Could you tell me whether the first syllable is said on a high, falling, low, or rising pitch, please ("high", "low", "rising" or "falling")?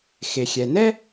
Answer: low